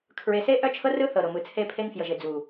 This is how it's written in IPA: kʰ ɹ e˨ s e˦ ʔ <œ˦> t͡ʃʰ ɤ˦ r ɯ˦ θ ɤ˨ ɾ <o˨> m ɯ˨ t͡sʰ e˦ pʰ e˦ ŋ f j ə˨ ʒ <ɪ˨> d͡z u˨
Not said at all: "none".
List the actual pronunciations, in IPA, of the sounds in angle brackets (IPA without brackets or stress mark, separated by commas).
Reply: œ˦, o˨, ɪ˨